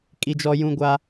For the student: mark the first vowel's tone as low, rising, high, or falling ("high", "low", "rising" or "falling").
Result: high